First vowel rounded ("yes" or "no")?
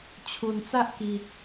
yes